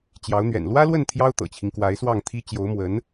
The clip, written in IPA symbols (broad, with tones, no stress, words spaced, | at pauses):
t͡ɕjɑ˧˥ʊ̯n̪ɥɛ̰˨˩n lwä˥lwə˥˩n t̪ʰjɑ˥ʊ̯t̪ɤ̰˨˩t͡ɕʰi˦ŋ kwa˧˥ɪ̯swɑ˥˩ŋ t̪ʰi˥ t͡ɕjo˧˥ʊ̯mwə˧˥n